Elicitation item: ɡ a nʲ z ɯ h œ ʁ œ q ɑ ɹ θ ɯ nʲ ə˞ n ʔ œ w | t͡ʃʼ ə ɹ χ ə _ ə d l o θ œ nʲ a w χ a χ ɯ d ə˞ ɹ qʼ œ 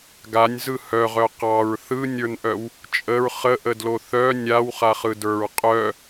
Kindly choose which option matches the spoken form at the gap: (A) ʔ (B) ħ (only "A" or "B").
A